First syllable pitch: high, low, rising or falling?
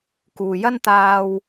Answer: low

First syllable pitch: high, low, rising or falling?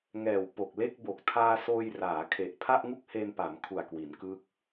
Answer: low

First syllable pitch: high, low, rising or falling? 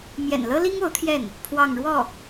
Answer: low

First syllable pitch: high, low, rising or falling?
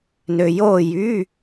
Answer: low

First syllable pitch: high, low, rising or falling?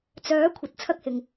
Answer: rising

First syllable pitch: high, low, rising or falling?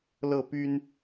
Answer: falling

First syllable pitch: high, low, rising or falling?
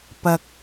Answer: low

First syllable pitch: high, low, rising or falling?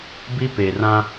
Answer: high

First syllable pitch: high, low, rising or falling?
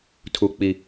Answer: high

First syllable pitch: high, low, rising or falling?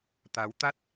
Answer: rising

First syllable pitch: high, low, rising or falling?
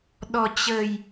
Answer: low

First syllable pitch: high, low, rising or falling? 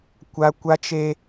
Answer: high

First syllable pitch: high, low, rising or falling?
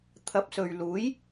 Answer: rising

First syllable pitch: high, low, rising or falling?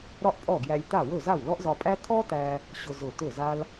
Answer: high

